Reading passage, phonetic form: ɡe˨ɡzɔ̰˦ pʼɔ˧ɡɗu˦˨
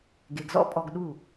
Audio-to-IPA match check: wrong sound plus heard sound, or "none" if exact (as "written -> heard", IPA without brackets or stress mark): none